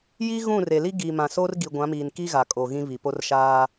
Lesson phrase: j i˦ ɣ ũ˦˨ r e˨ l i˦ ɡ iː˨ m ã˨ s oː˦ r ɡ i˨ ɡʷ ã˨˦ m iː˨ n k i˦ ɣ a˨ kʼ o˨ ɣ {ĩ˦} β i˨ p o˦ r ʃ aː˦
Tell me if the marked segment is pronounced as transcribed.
yes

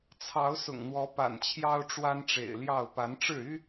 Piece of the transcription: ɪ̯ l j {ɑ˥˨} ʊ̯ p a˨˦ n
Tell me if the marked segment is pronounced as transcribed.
yes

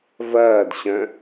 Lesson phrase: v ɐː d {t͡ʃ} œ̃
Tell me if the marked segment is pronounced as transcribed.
no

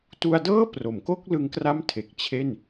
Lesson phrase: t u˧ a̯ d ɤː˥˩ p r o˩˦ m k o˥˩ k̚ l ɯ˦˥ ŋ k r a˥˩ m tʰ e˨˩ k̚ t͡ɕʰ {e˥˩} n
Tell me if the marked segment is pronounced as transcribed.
yes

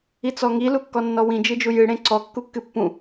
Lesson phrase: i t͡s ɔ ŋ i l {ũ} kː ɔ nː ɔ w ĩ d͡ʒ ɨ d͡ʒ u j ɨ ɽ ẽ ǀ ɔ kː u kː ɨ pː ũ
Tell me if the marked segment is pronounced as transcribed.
no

